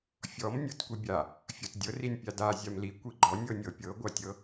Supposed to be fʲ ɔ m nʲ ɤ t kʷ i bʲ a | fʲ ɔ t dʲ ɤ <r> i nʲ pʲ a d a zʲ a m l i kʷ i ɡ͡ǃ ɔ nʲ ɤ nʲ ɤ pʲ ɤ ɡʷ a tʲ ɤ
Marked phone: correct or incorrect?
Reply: correct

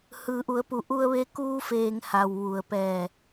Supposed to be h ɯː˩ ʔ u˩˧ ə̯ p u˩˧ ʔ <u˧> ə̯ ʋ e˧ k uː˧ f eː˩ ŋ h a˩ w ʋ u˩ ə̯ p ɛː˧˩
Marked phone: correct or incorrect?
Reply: correct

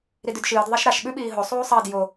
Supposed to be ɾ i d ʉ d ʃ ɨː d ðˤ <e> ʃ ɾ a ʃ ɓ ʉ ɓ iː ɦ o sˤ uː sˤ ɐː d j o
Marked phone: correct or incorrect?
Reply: correct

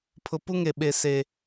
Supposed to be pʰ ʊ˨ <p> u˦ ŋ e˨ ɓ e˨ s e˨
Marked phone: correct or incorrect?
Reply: correct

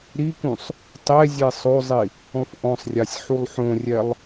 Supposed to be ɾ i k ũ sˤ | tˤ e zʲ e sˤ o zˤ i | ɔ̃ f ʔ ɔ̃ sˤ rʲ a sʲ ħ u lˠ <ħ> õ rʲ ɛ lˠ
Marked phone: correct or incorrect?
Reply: correct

